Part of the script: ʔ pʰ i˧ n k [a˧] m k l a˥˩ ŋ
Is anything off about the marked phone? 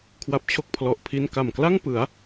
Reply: yes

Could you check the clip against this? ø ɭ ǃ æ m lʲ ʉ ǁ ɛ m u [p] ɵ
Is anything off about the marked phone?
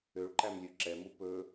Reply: no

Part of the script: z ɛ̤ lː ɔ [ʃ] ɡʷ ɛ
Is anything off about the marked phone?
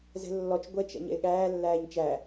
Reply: yes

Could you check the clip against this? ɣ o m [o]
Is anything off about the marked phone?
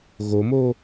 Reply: no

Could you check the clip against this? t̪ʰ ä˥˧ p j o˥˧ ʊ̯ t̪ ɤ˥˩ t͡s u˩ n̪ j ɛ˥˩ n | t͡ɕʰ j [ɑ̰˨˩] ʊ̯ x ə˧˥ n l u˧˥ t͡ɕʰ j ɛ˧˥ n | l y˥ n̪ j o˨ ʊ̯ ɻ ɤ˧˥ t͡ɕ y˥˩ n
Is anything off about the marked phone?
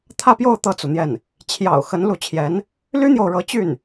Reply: no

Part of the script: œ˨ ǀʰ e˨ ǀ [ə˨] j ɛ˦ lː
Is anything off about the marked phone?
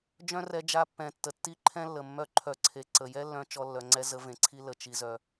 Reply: no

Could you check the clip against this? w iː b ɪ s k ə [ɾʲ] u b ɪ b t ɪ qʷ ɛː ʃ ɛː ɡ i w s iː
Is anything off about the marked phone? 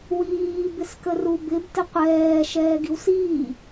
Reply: yes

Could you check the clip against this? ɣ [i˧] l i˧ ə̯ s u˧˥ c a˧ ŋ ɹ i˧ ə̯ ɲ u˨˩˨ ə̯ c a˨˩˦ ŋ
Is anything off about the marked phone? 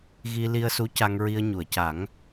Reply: no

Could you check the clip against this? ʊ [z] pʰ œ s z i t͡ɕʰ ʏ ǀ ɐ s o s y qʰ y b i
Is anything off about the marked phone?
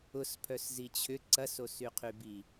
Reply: yes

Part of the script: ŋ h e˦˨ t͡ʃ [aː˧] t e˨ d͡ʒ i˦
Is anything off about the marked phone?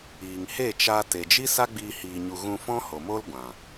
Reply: no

